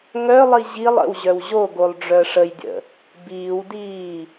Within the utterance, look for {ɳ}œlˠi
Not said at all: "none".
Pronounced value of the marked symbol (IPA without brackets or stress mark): ŋ